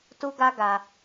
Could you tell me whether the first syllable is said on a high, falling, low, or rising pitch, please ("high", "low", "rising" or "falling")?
high